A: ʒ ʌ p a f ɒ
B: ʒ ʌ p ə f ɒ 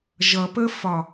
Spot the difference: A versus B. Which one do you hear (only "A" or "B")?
B